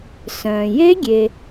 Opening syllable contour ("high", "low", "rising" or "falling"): low